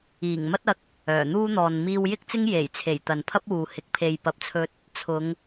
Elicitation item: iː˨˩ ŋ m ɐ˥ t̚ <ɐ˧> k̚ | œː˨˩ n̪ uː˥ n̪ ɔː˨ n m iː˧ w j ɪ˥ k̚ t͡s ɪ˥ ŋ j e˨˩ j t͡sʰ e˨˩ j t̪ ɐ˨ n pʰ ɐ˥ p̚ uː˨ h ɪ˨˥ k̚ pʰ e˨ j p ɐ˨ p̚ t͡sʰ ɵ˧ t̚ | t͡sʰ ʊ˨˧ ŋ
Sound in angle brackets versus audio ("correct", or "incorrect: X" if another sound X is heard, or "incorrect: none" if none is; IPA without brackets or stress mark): correct